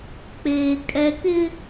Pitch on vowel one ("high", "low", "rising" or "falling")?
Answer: low